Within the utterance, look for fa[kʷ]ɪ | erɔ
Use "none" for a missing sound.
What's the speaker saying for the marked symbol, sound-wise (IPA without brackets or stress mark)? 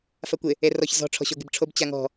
kʷ